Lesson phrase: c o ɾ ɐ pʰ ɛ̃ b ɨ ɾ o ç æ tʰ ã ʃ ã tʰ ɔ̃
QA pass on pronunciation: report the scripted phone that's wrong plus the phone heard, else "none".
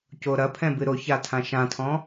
æ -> a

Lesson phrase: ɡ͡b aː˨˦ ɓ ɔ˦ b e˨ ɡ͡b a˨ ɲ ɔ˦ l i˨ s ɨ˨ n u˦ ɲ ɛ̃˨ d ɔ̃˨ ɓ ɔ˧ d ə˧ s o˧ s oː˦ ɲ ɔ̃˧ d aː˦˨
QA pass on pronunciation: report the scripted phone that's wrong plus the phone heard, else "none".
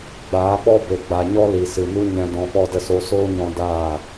none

